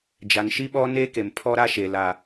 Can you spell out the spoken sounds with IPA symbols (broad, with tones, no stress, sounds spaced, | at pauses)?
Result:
d͡ʒ a˨ n ʃ i˦ ɓ ɔ˦ n eː˦ k e˨ m pʰ ɔ˦ ɾ a˦ ʃ e˨ l a˦